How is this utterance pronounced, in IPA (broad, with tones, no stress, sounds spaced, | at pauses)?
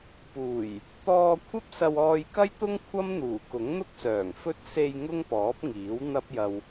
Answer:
p uː˨˩ j | t̪ ɔː˧ kʷʰ ɐ˥ p̚ s ɐ˧ w ɔː˧ j k ɐ˥ j t̪ ʊ˥ ŋ kʷʰ ɐ˥ m n̪ uː˨˩ k ʊ˨˥ ŋ n̪ ʊ˥ k̚ s œː˨˩ ŋ f ɵ˥ t̚ s e˧ j ŋ ʊ˥ ŋ p ɔː˨˥ p̚ ŋ iː˨˥ w n̪ ɐ˥ p̚ j ɐ˧ w